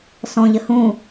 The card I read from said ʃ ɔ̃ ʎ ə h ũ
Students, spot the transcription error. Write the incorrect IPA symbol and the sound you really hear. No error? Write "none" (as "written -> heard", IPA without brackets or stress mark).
ʃ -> s